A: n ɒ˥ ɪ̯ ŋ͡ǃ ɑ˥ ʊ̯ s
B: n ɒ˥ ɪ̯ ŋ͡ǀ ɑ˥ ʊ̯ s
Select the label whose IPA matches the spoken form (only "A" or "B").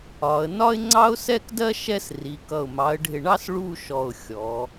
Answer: B